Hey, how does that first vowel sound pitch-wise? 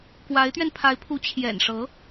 rising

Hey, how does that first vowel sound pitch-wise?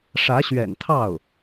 rising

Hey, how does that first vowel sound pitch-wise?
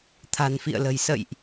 low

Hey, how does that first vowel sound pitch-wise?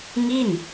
falling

